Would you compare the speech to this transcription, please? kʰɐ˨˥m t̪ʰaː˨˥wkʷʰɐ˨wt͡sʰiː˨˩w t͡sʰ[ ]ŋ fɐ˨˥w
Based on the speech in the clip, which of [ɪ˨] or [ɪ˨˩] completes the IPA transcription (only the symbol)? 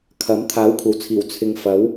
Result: ɪ˨